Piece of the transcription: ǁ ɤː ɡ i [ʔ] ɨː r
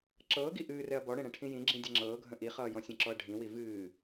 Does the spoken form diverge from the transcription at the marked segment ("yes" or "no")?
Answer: no